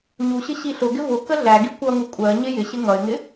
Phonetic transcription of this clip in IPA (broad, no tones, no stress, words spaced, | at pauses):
ɲuɕɪ ɕiɬʊɡɪ vʊ kəɮæɡi kʷʌŋu kʷʼɜ ɲɪjɪɕɪ ŋʌɪ̯ŋɪ